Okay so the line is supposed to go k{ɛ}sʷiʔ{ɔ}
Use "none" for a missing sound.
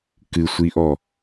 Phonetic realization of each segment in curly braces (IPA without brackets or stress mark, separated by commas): ɨ, ɔ